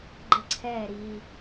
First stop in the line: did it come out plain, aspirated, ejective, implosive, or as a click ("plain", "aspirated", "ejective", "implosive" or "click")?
click